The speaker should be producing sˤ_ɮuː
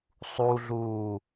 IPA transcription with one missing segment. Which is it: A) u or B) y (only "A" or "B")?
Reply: A